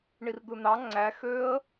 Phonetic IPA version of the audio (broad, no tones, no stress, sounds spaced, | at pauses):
ɳ i r d̪ ɯ n̪ ɑ ŋ͡ǀ æ x ø ə̯